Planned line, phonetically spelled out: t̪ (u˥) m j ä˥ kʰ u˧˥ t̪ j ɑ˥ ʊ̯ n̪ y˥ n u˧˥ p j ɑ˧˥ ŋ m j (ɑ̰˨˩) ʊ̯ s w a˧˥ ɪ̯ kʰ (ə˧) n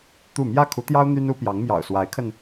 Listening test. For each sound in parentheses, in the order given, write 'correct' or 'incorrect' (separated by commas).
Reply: incorrect, correct, correct